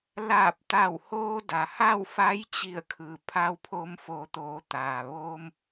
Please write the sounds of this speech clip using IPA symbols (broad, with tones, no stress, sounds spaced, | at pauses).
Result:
l aː˧˩ p̚ t̪ a˧˩ w h oː˧ d a˩ h a˥˨ w f a˧˥ j t͡ɕ i˧˩ ə̯ kʰ ɯː˩ pʰ a˧ w pʰ o˧ m f o˩˧ t̪ oː˩˧ t̪ aː˩ ʋ oː˧ m